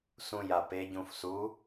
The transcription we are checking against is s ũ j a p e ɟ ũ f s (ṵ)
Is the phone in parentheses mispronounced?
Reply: yes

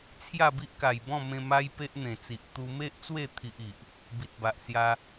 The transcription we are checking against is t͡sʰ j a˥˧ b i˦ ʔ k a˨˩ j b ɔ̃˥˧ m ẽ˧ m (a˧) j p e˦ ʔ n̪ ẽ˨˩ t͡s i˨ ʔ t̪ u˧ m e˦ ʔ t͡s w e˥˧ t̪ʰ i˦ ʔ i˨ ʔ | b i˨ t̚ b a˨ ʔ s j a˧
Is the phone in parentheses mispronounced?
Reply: yes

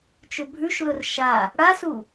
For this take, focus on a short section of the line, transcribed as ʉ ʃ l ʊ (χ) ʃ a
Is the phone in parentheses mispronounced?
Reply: yes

